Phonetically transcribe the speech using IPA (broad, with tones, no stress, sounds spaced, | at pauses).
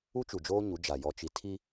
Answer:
u˦ t͡ʃ u˨ d͡ʒ oː˦ ɲ u˨˦ d͡ʒ a˨ j ɔ˨ t͡ʃ i˨ tʰ i˦